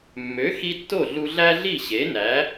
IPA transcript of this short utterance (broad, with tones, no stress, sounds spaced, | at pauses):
mː ø˩˥ x i˧ tː o˥˩ ɮ u˧ ɮ æ˥ ɮ i˥˩ ɕ e˩˥ n æ˩˥